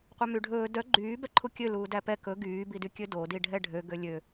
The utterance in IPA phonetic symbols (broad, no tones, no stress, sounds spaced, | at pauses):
qʷ œ m y ɖʱ ɵː d œ ɡ͡ǃ yː b ɛ ǃʰ u kʲ ø l uː d æ p ɛ k ɵ ɡ yː b i d y kʲ ø d o d i ɖʱ ɛ ɖʱ ø ɡ ø lʲ ø